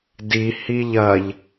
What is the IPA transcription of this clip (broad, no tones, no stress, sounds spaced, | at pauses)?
d i h i ʎ ɐ ʎ